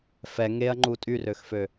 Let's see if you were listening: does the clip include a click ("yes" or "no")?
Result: yes